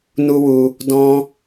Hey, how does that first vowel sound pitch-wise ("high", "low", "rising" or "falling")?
high